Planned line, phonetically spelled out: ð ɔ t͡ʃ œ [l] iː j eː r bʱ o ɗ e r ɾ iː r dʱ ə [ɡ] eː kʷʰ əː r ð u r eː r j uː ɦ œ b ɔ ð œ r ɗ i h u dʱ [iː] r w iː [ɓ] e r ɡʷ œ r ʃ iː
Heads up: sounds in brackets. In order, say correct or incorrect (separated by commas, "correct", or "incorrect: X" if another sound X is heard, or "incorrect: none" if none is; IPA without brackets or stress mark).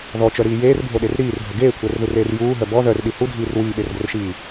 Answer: incorrect: ɾ, correct, correct, correct